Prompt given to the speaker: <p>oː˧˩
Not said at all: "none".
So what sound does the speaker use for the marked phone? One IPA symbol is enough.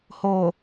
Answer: h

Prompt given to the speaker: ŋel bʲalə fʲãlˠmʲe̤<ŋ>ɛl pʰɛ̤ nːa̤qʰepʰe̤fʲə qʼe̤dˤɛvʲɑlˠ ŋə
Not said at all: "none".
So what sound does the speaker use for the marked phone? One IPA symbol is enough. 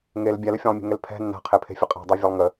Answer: ŋ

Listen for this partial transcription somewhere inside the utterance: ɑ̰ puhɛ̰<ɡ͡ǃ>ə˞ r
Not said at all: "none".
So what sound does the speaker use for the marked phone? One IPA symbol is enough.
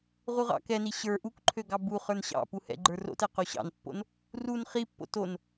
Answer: ɡ͡ǃ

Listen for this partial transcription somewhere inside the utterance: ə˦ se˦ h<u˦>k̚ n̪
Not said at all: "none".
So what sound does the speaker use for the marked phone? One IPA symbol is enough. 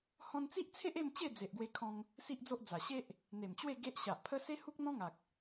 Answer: u˦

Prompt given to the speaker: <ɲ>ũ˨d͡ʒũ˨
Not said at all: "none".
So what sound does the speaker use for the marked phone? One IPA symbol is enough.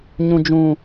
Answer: ɲ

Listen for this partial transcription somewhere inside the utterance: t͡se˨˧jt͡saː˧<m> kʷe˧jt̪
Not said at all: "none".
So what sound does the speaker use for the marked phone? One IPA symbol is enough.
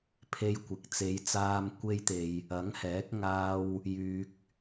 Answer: m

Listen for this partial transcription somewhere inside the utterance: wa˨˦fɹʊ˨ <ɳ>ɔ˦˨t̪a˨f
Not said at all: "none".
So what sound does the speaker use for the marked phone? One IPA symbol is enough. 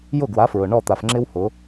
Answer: ɳ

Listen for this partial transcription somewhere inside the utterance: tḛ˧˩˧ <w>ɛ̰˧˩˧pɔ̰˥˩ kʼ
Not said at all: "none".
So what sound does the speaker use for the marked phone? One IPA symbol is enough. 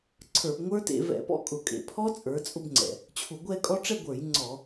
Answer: v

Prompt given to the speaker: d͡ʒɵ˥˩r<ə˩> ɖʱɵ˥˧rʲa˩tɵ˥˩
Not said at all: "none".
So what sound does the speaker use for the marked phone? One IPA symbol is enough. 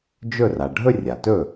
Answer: a˩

